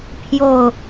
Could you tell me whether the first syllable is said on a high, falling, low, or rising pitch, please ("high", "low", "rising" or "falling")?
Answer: falling